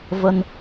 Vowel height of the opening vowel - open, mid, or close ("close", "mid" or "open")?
mid